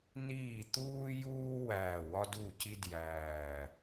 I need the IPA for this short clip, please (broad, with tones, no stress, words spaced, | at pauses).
niː˥˩t̪uː˥juː˥wæː˧˩ wɒ˥du˥˩ci˥djæː˧˩